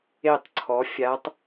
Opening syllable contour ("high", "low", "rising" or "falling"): falling